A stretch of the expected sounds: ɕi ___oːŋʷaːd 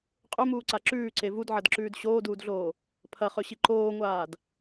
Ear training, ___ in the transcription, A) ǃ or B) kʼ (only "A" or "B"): A